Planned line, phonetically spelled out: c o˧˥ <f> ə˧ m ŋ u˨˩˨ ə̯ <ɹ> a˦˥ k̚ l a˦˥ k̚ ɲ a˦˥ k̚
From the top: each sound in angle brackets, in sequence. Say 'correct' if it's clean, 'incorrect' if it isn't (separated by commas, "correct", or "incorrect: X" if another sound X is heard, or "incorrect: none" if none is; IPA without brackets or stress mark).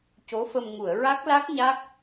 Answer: correct, correct